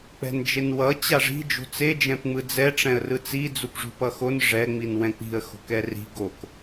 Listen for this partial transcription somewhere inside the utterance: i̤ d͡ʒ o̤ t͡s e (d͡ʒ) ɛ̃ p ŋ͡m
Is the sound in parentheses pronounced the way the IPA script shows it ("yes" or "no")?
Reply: yes